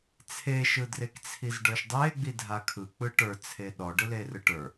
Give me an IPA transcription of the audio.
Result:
t͡sʰ e ʃ ɯ d r e k t͡sʰ i z ɖ ə˞ ʃ dˤ e ɡ͡b i dʱ a kʰ ɯ k͡p ɯ ʈ ə˞ t͡sʰ e ɗ ɔ ɖ ɯ l e r ɯ ʈ ə˞

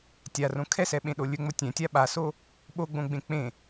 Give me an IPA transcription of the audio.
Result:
tʲ a r õ kʰ ɛ s ɛ ɓ ẽ ɗ o lʲ ɵ ŋ͡m o tʲ ɛ̃ tʲ a ɓ a s o | ɓ o ɡ͡b õ ɡ͡b ẽ k͡p ẽ

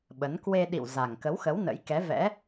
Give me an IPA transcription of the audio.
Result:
ɓ ə˨˦ n k w e˧ ɗ ḭ˧˨ w z a˨˩ ŋ k ə˨˦ w x ə˨˦ w n ə̰˧˥ j k ɛ˨˦ v ɛ̰˧˥

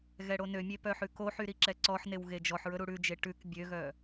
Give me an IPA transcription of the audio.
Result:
ɣ ɛ ɽ o n ø mʲ e p œ ħ ʉ k o ħ y ɾ i ǁ ɛ ǀ ɔ ħ n e w ɣ e d͡ʒ ɔ ħ ɹ ɵ ɾ u ɽ ʉ d͡ʒ e ʈ ʉ k bʲ ø ɣ œ

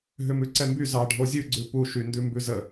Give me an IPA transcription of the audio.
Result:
ɦ ʏ m ʉ ǀ ɛ m b y z ɑ ɖʱ o zʲ ʉ ɡ͡ǀ ʉ p u ʃ y n d ʉ m b ʉ z ə

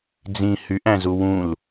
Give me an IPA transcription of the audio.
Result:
d͡z ĩ h y ʔ æ̃ z u w ũ l

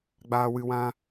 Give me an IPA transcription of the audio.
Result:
ɡ͡b aː˦ w ɨ˦ w ã˦

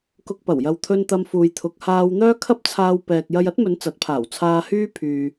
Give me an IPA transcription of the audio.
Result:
k ʊ˧ k̚ p ɐ˨˩ w j ɐ˨ w t̪ʰ ɵ˧ n t̪ ɐ˧ m f uː˨ j t̪ʰ ʊ˨˥ k̚ h aː˧ w n̪ œː˥ kʰ ɐ˥ p̚ t͡sʰ aː˧ w p ɛː˨ k̚ j ɐ˧ j ɐ˥ t̚ m ɵ˨˧ n t͡s ɐ˨˥ t̚ pʰ aː˨˩ w t͡sʰ aː˧ h yː˥ pʰ yː˨

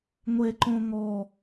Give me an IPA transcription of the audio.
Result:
ŋʷ e ǃ õ ŋ ɔ

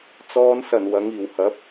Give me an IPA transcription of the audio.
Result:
t͡s ɔː˨˧ n s ɐ˨˩ n w ɐ˨˧ ŋ iː˨˩ w h ɐ˨˥ p̚

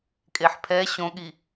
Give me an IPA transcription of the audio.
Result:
kʼ e ħ pʰ ɛ ɕ õ ɠ i

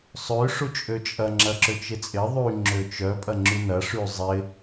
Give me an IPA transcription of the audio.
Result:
sˤ ø ʂ u t͡ʃʼ ø t͡ʃʼ ɐ ŋ͡ǁ ɐ ǁ ø t͡ʃ ɪ t͡sʼ ɪ ðˤ y ŋ͡ǁ ø t͡ʃ œ pʼ ɐ ŋ͡ǁ y n ɐ ʂ y zˤ ɪ

